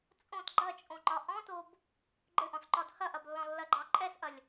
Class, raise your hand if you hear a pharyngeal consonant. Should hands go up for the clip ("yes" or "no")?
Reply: no